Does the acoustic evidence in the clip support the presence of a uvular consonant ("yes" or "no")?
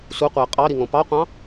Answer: yes